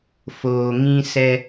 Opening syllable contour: low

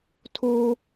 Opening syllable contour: high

